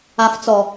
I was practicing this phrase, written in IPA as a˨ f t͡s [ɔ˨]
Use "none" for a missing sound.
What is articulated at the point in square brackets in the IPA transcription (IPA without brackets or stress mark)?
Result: ɔ˨